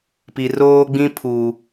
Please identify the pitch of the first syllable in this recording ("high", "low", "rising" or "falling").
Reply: low